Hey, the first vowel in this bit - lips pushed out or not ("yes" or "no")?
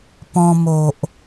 yes